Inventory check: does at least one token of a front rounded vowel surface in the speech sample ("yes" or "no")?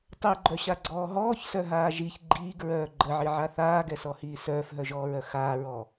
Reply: yes